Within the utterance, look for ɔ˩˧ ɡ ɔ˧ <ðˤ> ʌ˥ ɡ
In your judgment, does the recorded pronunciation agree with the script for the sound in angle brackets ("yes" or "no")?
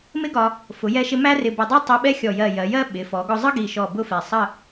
no